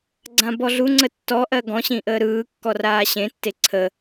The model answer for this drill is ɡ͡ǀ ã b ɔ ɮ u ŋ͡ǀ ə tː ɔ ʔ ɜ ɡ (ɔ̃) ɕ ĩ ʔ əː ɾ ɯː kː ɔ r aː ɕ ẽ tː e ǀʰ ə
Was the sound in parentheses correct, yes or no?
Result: yes